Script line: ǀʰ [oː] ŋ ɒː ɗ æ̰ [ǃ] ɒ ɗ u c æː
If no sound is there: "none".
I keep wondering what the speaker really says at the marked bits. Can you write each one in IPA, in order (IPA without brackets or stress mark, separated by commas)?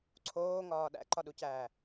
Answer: oː, ǃ